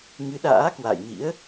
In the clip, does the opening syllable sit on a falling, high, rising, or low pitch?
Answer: rising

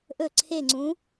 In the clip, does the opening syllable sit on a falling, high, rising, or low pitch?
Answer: falling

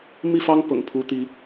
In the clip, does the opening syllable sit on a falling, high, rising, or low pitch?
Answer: falling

